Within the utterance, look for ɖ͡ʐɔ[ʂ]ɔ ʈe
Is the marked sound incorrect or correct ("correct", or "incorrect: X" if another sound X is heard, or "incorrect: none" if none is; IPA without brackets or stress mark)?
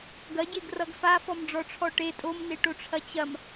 incorrect: ʈ͡ʂʰ